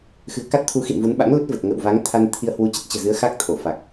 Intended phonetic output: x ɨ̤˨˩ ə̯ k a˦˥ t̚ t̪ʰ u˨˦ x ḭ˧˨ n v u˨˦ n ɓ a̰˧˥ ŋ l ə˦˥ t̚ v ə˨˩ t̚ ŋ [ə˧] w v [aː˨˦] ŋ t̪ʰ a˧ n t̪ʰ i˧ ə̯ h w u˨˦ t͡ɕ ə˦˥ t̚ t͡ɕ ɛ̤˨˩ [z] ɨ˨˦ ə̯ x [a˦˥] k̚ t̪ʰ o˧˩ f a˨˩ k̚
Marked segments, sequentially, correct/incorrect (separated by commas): incorrect, incorrect, correct, correct